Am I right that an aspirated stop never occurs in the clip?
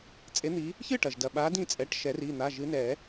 yes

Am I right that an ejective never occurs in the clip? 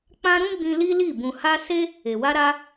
yes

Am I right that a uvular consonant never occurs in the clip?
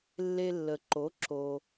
yes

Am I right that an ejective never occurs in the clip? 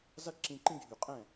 no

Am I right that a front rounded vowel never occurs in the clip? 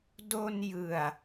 yes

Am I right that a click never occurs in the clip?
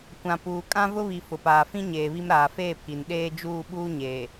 yes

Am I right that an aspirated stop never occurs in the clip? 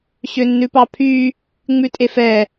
no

